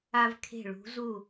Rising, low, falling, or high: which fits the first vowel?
high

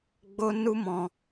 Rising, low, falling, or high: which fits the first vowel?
high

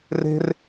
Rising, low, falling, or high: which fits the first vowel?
high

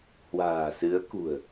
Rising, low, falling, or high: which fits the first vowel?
low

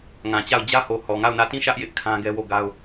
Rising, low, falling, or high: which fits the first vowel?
low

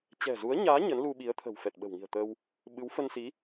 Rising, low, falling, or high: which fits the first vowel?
low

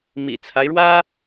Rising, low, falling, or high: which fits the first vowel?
low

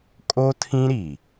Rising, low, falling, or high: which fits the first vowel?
high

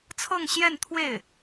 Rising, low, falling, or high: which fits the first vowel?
falling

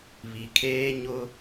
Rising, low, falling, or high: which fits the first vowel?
low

